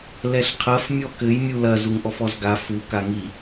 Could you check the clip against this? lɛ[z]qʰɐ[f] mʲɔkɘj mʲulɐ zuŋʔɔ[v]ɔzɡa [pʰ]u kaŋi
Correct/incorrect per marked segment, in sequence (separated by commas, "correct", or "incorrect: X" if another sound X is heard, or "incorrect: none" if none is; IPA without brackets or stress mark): incorrect: ɬ, correct, incorrect: f, incorrect: f